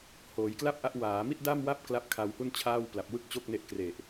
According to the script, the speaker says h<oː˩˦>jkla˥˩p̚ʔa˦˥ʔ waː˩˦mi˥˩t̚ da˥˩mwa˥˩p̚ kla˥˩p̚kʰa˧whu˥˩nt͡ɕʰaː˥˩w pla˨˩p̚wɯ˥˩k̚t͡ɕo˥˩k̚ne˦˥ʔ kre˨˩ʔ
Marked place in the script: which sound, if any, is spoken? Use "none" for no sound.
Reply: oː˩˦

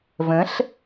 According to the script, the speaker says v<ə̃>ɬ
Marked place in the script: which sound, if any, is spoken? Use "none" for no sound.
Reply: ə̃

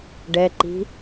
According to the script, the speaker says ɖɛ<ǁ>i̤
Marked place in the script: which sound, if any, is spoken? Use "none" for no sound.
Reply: ǃ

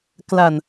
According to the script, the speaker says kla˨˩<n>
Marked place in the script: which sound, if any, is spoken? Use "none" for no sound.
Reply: n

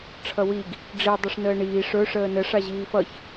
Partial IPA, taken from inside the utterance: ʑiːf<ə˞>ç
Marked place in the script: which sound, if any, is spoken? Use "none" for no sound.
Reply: ʌ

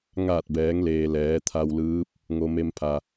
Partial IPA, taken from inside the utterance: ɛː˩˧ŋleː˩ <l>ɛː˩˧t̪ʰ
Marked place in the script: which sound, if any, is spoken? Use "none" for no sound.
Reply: l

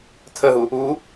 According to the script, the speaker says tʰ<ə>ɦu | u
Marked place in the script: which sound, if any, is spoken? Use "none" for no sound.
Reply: ə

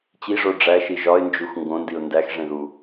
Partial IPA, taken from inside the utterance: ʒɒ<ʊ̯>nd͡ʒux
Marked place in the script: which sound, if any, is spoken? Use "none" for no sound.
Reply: ɪ̯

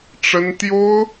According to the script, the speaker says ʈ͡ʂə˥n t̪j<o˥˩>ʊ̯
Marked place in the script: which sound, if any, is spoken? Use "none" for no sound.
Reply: o˥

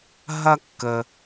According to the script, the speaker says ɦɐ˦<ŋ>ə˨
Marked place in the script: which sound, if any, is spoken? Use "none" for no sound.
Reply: kː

